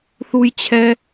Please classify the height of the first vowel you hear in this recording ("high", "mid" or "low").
high